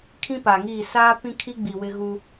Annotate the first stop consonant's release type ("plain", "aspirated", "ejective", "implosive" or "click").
aspirated